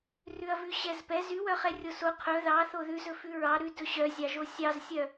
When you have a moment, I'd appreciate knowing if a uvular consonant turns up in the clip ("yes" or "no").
yes